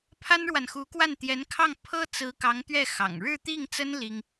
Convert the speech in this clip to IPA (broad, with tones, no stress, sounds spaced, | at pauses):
pʰ a˥ n ɻ w a˨ n x u˧˥ k w a˥˩ n t̪ j ɛ˧˥ n kʰ ɑ˥˩ ŋ pʰ ɤ˥ t͡s ɹ̩˧˥ k ɑ˧˥ ŋ t̪ ɥ ɛ˥˩ x ɑ̰˨˩ ŋ ɻ ɻ̩˥˧ t̪ i˥˩ ŋ t͡s ə˥ n l i˥ ŋ